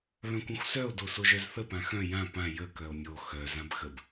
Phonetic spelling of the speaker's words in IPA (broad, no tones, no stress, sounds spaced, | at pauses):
β œ̃ kʷ œ̃ xʷ s œ o̯ d o s o ʒ œ z θ ə p ã x œ̃ j ã p ã j ə k œ o̯ nʲ o x œ z ã b x ə b